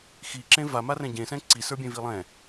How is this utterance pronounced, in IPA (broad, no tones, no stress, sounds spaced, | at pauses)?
x i ǁ ẽ v a m a r ɛ̃ ɟ ẽ s ɛ̃ ǀ i s ə˞ bʲ ẽ v i lˠ ɛ̃